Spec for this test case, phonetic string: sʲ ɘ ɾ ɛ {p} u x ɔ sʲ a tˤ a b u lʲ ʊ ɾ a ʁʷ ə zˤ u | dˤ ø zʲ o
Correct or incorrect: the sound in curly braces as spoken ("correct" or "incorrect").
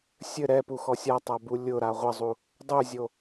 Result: correct